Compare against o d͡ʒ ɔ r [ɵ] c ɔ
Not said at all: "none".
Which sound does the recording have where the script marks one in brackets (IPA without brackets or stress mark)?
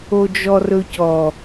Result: ɵ